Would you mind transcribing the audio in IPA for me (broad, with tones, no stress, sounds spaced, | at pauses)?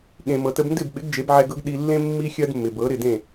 ɠ ẽ˩ m ɤ˩ t ə˧ b n d ɪ˥˩ b ɓ ɪ˩˥ ɡ d͡ʒ e˩˥ b ʕ ɛ˧ ɡ ɤ˥ ɡ ɗ i˧ lː ẽ˥ mː i˥ xʲ ɜ˥ d mː ɪ˩ b ɤ˩˥ ɾ ɪ˥˩ d ẽ˥˩